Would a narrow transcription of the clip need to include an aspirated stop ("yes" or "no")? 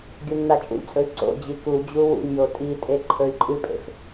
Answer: yes